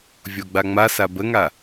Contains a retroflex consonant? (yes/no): no